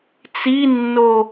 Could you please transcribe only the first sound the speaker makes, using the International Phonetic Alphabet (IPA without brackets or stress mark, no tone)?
t͡s